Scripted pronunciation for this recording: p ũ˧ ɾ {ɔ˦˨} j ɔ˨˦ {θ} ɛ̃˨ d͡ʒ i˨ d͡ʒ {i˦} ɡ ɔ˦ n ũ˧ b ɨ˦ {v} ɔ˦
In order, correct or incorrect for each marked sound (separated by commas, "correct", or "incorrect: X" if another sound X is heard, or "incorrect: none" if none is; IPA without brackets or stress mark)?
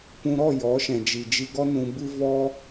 correct, incorrect: ʃ, incorrect: i˧, correct